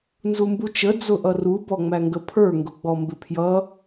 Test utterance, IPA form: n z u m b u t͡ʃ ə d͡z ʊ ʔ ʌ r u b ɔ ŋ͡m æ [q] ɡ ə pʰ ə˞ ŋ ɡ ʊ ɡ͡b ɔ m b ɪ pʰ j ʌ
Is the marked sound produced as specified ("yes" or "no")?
no